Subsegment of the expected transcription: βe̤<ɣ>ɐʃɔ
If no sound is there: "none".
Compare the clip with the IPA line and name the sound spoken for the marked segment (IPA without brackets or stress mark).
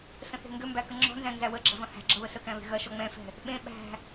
ɣ